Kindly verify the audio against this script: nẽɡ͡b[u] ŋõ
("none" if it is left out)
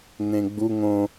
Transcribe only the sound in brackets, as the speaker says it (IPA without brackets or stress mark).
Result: u